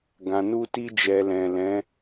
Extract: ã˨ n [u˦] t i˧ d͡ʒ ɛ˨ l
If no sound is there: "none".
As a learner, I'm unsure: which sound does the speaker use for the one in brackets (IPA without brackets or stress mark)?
u˧